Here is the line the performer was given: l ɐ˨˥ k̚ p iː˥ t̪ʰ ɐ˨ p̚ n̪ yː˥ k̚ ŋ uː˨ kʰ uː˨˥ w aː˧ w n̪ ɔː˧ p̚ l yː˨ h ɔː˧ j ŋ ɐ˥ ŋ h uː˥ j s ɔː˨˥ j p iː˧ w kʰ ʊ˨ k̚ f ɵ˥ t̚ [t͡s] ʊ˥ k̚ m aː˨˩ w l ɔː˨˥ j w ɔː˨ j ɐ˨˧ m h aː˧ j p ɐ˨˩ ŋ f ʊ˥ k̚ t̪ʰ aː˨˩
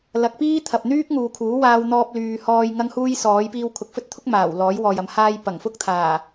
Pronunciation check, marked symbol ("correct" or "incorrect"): incorrect